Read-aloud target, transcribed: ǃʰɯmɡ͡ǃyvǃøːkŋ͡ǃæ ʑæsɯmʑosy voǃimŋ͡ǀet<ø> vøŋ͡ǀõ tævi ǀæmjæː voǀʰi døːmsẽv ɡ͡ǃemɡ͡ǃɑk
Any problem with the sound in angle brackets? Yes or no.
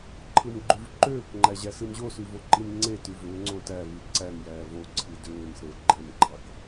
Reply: yes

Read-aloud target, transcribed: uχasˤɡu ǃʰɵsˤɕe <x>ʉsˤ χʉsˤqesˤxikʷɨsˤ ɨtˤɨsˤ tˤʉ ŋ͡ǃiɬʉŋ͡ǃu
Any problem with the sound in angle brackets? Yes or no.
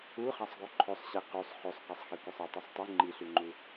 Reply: yes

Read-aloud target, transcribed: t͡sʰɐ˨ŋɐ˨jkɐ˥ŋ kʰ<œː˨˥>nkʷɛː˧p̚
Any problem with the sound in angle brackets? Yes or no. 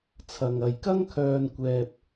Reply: yes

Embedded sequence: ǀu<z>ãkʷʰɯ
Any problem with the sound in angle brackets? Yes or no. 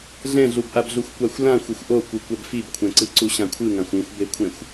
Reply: yes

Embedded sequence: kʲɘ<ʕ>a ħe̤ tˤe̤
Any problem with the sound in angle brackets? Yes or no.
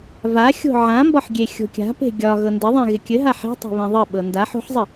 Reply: yes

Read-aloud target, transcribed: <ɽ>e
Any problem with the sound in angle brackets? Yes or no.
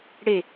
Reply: no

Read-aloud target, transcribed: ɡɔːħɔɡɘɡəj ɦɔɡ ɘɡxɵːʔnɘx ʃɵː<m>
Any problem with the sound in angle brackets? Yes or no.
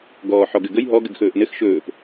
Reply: yes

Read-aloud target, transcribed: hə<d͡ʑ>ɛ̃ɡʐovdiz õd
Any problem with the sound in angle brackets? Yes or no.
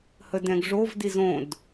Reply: yes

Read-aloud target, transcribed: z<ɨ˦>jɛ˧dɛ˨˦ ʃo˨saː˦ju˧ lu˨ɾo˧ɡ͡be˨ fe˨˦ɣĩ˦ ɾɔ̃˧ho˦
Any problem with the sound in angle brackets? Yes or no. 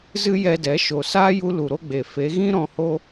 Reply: no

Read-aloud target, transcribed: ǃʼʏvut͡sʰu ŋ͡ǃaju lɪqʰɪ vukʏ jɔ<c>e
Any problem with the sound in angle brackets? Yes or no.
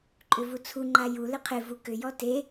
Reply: yes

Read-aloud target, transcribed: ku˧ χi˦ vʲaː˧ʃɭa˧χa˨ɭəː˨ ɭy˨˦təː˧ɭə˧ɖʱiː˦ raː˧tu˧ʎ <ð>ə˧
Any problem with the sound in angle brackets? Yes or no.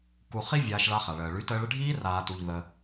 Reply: no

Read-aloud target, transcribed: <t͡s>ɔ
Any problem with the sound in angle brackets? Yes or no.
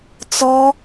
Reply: no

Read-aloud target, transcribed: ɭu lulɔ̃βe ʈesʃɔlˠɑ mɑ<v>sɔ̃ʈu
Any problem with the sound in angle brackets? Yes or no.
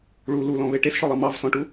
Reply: no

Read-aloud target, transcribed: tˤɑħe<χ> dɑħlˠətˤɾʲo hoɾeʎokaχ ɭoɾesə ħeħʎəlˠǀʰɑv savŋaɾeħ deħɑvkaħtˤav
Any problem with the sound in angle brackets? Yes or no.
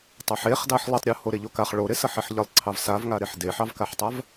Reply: no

